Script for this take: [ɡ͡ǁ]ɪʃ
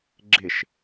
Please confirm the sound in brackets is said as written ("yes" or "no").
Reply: yes